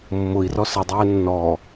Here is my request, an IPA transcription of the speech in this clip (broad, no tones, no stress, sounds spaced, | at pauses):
mː ʊ i̯ r ɔ s ə dˤ ɛː nː ɔ